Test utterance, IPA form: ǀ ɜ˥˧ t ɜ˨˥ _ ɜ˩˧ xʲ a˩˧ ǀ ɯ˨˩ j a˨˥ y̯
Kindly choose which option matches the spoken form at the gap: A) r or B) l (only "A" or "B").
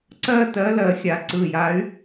B